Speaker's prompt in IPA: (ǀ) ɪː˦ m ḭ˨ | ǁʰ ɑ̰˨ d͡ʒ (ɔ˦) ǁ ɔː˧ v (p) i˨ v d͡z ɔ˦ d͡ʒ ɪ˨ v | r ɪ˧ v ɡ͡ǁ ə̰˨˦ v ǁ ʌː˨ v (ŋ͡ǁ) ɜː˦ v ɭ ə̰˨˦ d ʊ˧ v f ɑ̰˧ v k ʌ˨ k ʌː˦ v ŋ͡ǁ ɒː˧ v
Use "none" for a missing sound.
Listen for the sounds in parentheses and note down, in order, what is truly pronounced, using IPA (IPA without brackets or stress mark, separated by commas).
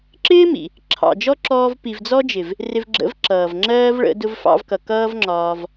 ǁ, ɔ˦, p, ŋ͡ǁ